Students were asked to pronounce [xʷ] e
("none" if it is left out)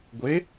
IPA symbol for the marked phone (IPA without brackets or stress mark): ɡʷ